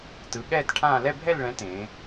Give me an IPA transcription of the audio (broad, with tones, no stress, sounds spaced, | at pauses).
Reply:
t ɯ˨˦ ɠ ɛː˥˧ t ʈʰ ãː˥˧ l ɛ˥˧ bʱ ɛ˥˧ l ɭ ɛ̃˨˦ t ẽː˨˦